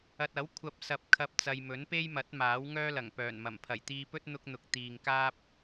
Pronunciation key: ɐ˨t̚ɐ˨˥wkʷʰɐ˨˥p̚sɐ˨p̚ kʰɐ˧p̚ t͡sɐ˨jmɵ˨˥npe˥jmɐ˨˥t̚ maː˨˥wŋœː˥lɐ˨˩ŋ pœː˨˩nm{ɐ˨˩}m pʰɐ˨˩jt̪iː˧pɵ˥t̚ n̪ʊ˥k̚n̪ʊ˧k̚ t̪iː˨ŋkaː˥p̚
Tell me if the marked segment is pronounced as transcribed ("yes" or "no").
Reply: yes